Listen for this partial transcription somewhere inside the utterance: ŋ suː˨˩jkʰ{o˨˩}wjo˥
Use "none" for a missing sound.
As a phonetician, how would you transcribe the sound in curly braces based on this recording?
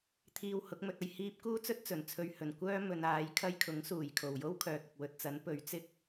o˨˩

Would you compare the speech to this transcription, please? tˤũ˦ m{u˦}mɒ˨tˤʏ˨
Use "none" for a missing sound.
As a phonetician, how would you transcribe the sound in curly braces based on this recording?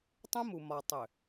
u˨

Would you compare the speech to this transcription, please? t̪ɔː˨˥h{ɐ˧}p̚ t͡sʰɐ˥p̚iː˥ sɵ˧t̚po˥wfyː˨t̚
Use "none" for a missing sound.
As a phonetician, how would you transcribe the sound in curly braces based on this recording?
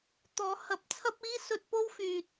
ɐ˨˥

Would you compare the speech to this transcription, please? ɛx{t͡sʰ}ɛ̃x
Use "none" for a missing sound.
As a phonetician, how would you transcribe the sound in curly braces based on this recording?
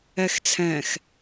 t͡sʰ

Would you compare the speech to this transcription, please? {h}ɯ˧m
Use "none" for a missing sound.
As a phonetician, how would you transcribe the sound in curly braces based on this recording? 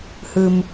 h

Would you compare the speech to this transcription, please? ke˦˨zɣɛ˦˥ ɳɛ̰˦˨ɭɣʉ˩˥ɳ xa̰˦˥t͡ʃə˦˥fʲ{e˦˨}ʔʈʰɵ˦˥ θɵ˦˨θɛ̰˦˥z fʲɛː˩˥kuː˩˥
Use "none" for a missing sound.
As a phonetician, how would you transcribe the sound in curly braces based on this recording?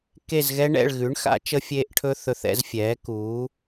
e˦˥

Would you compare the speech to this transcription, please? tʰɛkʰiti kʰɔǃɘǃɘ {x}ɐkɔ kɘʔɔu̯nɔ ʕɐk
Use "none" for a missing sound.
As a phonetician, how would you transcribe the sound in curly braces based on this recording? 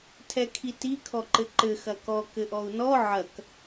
x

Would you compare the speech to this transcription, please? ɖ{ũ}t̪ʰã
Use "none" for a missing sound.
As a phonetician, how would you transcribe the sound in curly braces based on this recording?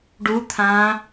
u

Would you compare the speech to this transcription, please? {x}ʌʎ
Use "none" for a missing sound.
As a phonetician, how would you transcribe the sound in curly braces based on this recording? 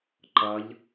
ǃ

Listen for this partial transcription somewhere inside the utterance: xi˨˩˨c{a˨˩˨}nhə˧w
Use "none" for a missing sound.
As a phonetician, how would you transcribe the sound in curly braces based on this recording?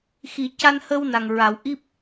a˧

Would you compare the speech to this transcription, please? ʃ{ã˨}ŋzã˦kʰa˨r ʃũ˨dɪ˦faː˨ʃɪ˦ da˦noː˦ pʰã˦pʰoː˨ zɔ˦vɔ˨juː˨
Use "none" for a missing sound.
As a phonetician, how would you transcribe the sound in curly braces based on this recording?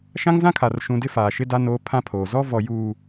ã˦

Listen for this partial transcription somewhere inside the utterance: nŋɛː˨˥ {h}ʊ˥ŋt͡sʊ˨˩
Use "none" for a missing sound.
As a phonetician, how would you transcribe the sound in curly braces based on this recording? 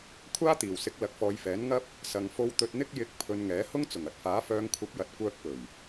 h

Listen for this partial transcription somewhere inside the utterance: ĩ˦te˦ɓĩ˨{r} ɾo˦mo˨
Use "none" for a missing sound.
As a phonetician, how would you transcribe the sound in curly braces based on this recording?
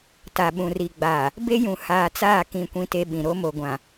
none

